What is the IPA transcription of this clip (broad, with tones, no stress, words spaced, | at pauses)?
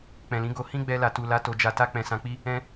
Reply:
k͡pɛ̃˨lĩ˨˦ɡo˧ hĩ˦ɡ͡bɛ˧ la˨tu˨la˨˦ to˧d͡ʒa˧ta˦ k͡pɛ̃˧sã˧k͡pi˦ | ɛ̃˦